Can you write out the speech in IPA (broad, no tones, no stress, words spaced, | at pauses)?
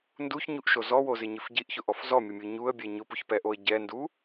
nduçɲuʔʃo zɔwozɪɲɪf ɟiʔçʊʔɔf zɔmʲʊmʲu ɲuə̯bʲɛ ɲʊpuçpɛʔoə̯ ɟɛndu